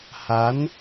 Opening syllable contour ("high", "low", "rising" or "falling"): rising